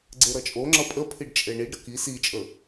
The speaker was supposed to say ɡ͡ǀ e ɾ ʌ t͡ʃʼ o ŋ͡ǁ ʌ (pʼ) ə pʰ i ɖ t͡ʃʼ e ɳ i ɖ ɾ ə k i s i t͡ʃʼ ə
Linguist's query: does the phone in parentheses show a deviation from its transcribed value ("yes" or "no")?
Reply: no